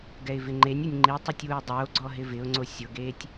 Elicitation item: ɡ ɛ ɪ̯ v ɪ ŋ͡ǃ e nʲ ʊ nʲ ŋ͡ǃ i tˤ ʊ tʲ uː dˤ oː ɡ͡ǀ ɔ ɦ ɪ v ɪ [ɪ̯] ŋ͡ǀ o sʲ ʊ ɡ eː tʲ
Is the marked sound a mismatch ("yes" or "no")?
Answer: yes